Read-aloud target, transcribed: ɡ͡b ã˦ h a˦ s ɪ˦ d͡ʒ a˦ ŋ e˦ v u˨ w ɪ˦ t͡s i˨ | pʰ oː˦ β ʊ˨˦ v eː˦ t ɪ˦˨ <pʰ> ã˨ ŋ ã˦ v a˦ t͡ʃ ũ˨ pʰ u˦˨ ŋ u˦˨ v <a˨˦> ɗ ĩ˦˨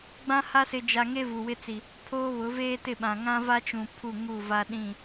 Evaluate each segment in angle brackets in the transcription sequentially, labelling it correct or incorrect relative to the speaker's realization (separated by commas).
incorrect, incorrect